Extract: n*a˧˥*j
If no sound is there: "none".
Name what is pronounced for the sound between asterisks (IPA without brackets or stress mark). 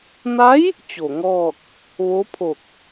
a˧˥